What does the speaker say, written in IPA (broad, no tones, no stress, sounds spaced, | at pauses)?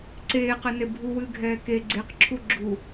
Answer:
ǀ eː q ɛ n e bʱ u w ɨː ɡʱ ɛː k e ɡ͡ǀ e q ǁʰ u ɡ͡ǁ u